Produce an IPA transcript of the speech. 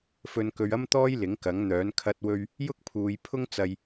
f ɵ˧ n k ɵ˧ ɥ ɐ˥ m t̪ ɔː˥ j l ɪ˨˥ ŋ k ɐ˨˥ ŋ n̪ œː˨˥ n kʰ ɐ˧ t̚ w ɵ˥ ɥ | j ʊ˥ k̚ pʰ uː˨˧ j pʰ ʊ˥ ŋ t͡s ɐ˧ j

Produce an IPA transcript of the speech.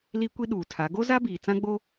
l i˦ kʷ i˦ ɗ uː˨ tʰ a˨˦ ɡ o˦ z a˦ b iː˨ t͡s ã˦ ɡ͡b o˦

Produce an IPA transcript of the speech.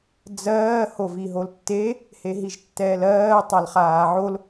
d͡z ɜː h o v i ɦ o l tː e | h e ɦ i ʒ tː ɛː l ɜː tˤ a l χ aː ʕ o l

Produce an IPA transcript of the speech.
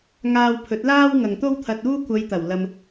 ŋ aː˧ w pʰ ɵ˨˥ t̚ l aː˥ w ŋ ɐ˨ ŋ t̪ o˥ w t̪ʰ ɐ˧ t̚ uː˥ kʷ ɐ˨˧ j t̪ ɐ˨˩ w l ɐ˧ m

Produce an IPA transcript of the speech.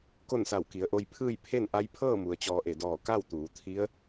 k o˥˨ n s a˧˩ w k i˩˧ ə̯ ʔ o˧ j pʰ ɯː˥˨ j pʰ e˥˨ n ʔ a˧˥ j pʰ ɤː˥˨ m u˩ ə̯ t͡ɕ ɔː˧ ʔ e˧˩ d ɔː˧˩ k a˥˨ w t̪ uː˩˧ t̪ʰ i˧˥ ə̯

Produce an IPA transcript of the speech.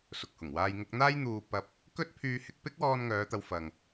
s ʊ˨ k̚ h ʊ˨˩ ŋ w aː˧ j ŋ ʊ˧ k̚ n̪ aː˥ j n̪ uː˧ p ɐ˧ p̚ | k ɵ˥ t̚ pʰ yː˥ h ɪ˥ k̚ p ɪ˥ k̚ w ɔː˧ n ŋ œː˨˧ t̪ ɐ˨˧ w f ɐ˨ ŋ

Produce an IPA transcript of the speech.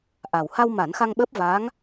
ʔ a˨˩ w h a˧ w m a˨˩˦ n x a˧ ŋ ɓ əː˦˥ p̚ v aː˧˥ ŋ

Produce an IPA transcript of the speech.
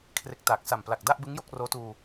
kʰ r e˨˩ k̚ t aː˨˩ k̚ s a˨˩ m p l a˨˩ k̚ d a˥˩ ʔ b ɯ˦˥ ŋ j o˥˩ k̚ r oː˦˥ t uː˧

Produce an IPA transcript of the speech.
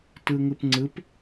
t ɯ ŋ ɯ p ŋ͡ǀ ɯ p

